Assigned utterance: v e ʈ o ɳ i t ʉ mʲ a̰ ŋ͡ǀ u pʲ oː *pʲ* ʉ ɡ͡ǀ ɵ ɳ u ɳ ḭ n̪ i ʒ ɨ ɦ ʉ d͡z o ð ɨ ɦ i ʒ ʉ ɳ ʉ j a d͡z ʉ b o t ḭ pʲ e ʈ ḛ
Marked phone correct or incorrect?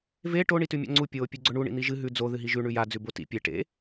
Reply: correct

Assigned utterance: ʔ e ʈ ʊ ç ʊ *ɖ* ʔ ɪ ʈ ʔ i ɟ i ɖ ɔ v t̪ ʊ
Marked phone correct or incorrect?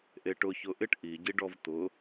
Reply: incorrect: none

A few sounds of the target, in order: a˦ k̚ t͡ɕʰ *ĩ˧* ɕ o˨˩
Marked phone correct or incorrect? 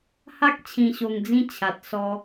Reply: incorrect: ĩ˨˩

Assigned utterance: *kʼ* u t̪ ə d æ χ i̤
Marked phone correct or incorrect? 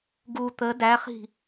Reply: incorrect: ɡ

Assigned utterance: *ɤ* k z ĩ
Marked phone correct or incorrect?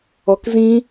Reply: incorrect: ɔ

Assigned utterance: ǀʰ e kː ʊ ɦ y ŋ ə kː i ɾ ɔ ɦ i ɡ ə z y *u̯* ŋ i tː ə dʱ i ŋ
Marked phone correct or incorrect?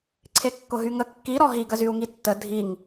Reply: correct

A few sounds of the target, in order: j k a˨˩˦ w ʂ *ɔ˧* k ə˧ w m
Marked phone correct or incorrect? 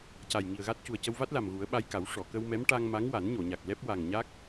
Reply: incorrect: ɔ˨˩˨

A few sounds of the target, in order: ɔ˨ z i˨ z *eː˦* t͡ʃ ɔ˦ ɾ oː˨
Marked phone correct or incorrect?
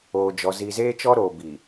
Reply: correct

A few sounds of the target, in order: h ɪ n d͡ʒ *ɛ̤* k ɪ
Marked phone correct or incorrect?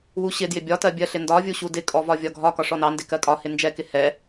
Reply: incorrect: ɛ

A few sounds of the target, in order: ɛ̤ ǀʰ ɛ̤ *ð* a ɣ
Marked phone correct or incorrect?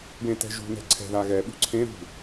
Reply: correct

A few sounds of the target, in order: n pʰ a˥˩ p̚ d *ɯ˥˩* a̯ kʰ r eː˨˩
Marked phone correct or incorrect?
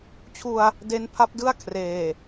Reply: correct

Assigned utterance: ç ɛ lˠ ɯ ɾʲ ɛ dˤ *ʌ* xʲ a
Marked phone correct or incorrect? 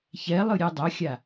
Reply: correct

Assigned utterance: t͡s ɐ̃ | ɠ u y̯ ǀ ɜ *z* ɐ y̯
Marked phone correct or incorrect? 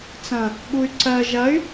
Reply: incorrect: ʒ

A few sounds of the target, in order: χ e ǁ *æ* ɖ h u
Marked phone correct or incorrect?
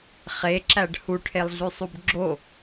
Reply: correct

